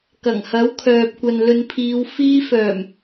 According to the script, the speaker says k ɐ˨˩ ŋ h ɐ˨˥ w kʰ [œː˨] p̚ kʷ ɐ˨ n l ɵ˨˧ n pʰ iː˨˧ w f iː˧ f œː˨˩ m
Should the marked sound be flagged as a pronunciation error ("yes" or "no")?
no